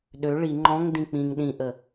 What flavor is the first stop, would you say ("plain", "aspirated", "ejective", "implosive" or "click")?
implosive